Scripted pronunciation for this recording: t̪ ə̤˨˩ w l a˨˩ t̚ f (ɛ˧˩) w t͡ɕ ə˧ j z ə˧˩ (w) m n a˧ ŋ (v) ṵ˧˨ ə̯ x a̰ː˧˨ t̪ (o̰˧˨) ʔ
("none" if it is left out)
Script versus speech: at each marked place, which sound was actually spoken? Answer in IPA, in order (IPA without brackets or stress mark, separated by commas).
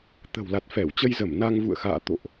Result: ɛ˧˩, none, v, o̰˧˨